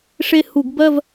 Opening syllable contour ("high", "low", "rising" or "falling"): falling